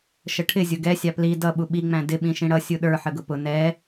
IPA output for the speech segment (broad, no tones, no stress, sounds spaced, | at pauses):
ʃ ə ʈʰ ɪ zʲ ʊ ɡ ɛ sʲ ɑ p l i d ʌ ɓ u ɓ i ŋ͡m æ̃ d ɪ ɓ ĩ ʃ ĩ ɽ ʌ sʲ u ɗ ə˞ ħ ə ɡ ʊ p ʊ n ɛ